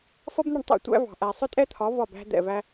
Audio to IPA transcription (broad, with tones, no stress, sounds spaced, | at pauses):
f ʌ˥ b n̪ ʊ˥˩ ɳ tˤ ɛ̰˥˩ tʷ æ̰˥ v ɑ̤˩ ʔ æ˩ sˤ ʊ˥ tʼ ɛ˥ t̪ʰ ɒ˩˥ v ɒ˥˩ b æ̤˥ d̪ ɛ̰˥˩ v æ˥